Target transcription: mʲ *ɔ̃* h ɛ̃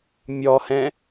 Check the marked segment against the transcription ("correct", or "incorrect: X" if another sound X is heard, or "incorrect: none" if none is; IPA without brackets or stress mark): incorrect: ɔ